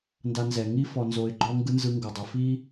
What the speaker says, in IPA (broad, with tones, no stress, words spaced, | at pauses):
nda˧nzɛ˩ ŋi˥ fɔ˧nzo˧ɪ̯ɡ͡ǃɔ˥ŋɡɯ˥ nzɯ˧ŋɡɤ˩dˤɤ˩fi˥